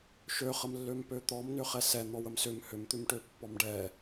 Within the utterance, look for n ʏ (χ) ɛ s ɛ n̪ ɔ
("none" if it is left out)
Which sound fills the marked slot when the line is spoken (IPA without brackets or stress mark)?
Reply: χ